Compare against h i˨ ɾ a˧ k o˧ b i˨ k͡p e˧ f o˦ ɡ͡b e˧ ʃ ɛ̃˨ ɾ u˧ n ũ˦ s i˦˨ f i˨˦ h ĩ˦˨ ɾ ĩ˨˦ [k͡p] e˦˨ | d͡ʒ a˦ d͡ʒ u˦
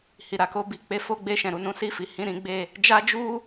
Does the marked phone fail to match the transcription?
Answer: yes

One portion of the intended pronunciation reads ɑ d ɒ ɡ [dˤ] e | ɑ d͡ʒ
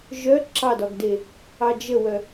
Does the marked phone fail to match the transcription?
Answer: yes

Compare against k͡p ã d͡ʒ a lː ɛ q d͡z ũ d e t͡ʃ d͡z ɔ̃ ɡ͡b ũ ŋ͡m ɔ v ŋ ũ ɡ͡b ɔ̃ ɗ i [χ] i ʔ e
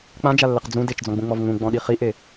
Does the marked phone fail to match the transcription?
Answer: no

